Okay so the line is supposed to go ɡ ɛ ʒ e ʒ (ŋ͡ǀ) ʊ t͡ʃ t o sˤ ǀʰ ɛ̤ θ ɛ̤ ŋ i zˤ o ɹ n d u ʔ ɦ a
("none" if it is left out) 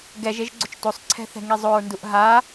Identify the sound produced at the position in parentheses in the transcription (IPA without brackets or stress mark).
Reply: ɡ͡ǀ